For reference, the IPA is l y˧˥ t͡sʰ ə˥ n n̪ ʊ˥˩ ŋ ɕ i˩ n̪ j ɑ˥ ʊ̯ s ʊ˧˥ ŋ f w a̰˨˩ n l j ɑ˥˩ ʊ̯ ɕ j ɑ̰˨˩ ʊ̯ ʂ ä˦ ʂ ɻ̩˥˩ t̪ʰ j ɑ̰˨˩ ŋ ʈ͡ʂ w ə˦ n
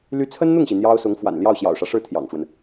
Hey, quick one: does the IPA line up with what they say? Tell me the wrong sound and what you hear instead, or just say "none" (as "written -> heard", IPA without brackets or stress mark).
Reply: none